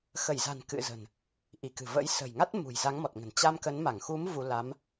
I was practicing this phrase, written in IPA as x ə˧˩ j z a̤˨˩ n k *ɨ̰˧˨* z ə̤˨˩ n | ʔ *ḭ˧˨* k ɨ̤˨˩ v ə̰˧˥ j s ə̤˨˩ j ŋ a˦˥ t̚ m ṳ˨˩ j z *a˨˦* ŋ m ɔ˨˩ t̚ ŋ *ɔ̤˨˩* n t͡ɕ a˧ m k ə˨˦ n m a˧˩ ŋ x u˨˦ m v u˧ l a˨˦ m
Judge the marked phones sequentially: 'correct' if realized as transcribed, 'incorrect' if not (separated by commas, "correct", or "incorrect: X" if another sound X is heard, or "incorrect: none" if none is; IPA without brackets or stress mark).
correct, incorrect: i˧˩, correct, incorrect: ə̤˨˩